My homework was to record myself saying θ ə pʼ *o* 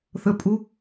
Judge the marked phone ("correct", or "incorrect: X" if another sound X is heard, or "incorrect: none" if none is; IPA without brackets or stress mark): incorrect: u